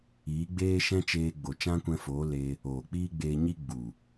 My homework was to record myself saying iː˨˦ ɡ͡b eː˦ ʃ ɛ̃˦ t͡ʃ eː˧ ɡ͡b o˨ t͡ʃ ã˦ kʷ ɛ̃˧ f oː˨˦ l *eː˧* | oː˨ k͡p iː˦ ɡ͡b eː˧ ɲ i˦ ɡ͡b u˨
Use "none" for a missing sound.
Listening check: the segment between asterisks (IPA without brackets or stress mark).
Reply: eː˧